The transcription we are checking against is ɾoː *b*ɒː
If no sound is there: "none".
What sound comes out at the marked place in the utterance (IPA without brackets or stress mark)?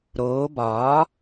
b